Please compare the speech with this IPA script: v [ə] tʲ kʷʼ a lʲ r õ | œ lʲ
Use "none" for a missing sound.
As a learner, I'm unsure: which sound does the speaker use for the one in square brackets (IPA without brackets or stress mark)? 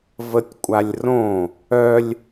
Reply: ə